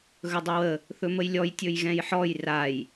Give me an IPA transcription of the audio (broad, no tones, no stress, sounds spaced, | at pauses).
ɣ ɵ dˤ ɵ w ə | θ ɵ m ə j lʲ ɔ j tʲ ɵ j ɣ ɛ̃ j ħ ɔ j r a j